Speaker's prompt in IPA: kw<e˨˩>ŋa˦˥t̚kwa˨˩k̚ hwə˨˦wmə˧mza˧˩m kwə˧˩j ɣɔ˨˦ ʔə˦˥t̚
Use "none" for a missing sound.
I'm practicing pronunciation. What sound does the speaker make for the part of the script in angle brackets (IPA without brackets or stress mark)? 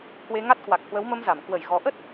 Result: e˧